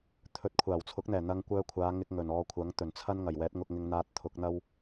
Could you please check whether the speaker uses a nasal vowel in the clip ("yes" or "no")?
no